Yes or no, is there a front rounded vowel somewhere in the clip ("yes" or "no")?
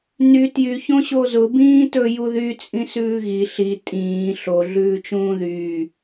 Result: yes